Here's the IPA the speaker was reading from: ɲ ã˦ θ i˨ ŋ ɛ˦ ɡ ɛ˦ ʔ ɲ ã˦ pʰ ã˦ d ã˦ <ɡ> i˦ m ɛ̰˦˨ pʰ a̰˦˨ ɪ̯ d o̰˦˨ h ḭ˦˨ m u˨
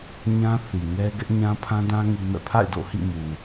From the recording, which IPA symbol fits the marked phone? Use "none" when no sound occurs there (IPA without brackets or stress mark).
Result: ŋ